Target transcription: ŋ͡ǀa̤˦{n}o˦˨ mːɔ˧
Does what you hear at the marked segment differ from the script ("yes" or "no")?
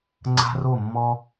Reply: yes